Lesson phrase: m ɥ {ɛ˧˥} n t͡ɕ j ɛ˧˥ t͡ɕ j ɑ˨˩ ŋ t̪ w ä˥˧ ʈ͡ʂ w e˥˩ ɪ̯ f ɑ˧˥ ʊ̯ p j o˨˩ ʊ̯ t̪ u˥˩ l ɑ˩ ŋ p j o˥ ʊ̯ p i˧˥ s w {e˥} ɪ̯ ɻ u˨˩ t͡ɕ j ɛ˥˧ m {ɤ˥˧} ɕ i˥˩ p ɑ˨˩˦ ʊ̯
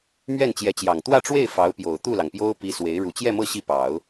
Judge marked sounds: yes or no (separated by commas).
no, no, yes